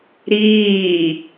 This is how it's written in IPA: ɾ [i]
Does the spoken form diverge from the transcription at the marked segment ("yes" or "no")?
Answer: yes